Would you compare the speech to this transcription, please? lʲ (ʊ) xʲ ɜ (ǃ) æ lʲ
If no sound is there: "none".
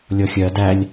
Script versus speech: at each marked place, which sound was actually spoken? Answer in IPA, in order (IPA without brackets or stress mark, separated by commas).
ɔ, d